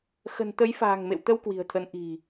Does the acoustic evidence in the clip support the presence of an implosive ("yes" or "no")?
no